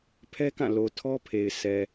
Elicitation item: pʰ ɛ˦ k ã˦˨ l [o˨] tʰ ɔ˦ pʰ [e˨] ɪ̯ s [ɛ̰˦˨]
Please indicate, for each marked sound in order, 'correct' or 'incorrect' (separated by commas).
correct, correct, incorrect